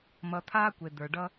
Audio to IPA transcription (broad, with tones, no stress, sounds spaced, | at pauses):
m ʌ˨ t̪ʰ aː˦ kʷ e˨ d̪ ə˞˨ ɖ ʌ˦